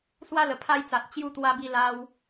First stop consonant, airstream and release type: aspirated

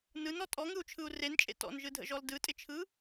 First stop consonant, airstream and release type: ejective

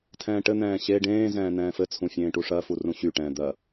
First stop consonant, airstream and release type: aspirated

